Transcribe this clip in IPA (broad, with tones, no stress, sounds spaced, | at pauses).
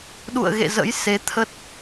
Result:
ɗ ṵ˧˨ ə̯ ɣ ḛ˧˨ z ə̰˧˥ j s e˨˦ t̪ʰ ə˦˥ t̚